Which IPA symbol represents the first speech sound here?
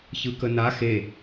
ç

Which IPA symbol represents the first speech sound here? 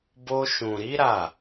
b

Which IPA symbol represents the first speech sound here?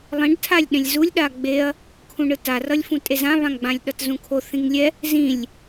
lˠ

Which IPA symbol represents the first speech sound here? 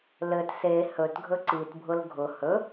l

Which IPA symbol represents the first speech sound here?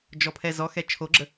d͡ʒ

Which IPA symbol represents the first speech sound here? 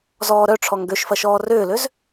z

